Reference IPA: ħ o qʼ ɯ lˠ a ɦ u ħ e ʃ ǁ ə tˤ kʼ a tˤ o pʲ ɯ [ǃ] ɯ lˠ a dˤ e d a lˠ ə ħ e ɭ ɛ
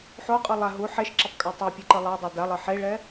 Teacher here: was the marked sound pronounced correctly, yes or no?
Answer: yes